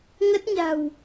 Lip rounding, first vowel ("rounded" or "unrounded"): unrounded